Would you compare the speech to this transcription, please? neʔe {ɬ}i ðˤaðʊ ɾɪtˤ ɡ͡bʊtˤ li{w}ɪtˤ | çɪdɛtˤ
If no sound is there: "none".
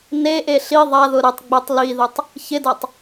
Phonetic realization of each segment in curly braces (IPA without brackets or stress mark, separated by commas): ɬ, ð